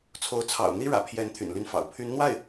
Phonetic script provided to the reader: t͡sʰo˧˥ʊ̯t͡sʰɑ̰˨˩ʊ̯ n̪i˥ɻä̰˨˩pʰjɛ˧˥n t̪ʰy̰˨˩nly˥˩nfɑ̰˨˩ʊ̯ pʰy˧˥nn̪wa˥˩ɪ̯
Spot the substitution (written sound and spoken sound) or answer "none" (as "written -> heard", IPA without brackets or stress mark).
none